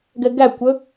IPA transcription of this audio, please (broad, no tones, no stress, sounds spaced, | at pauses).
ɡ ɛ ɡ æ kʷ ɵ